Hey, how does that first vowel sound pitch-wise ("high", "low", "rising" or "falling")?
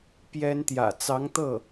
high